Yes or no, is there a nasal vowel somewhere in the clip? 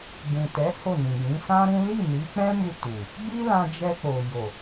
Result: yes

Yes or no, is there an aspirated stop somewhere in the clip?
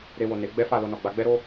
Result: no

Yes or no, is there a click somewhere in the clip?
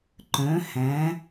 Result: yes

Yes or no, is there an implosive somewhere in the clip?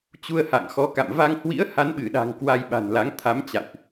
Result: yes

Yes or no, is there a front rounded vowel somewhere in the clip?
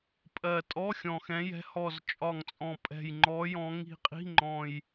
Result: no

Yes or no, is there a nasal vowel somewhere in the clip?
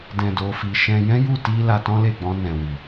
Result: yes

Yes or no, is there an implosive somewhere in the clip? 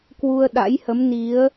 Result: yes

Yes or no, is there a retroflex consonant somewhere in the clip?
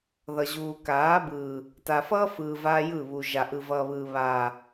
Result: no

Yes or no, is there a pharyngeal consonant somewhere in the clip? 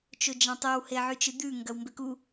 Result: yes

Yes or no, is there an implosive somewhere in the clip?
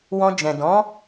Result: no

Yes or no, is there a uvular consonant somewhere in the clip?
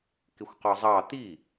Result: yes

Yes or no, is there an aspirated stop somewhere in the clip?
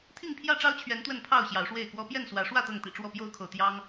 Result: yes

